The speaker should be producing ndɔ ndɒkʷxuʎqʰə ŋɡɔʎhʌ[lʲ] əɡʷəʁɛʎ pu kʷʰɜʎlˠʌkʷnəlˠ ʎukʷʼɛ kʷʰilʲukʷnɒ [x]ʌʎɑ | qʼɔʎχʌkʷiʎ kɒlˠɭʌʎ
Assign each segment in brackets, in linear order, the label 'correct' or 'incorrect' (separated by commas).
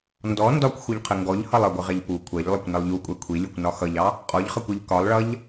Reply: incorrect, correct